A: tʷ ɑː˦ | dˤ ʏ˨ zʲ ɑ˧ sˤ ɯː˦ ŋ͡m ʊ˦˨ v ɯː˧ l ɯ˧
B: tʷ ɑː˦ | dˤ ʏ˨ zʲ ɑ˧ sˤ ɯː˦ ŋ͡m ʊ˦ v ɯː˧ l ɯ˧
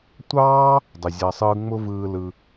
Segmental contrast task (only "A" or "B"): B